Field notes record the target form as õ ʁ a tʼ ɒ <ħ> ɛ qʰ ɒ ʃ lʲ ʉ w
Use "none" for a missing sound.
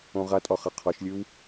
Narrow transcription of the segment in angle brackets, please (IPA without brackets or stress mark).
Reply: χ